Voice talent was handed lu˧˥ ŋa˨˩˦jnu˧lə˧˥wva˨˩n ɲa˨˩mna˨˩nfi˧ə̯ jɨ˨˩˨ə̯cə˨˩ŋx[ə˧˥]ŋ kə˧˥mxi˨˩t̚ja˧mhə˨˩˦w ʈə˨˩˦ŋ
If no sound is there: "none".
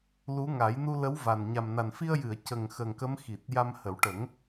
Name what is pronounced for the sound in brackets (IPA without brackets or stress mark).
ə˨˩